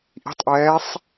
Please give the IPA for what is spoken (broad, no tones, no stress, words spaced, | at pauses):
ʔi̤tˤʔɛːsˤ